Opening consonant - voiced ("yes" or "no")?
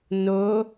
yes